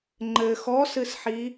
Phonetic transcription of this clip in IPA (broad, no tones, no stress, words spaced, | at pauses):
ŋ͡ǃɘ xɔsɨsħi